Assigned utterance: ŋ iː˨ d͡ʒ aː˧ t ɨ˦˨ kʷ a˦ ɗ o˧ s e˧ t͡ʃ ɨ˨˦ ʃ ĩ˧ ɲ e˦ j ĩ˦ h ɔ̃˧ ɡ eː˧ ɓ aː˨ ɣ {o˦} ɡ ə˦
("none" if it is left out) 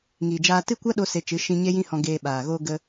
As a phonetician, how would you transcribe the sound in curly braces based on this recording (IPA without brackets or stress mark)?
o˦